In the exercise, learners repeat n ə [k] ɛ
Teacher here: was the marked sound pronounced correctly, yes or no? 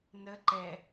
no